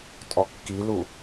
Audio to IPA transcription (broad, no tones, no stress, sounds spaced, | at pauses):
tʼ ɔ kː i l u